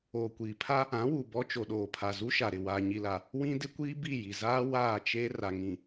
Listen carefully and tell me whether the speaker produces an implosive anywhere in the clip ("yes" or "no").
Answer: yes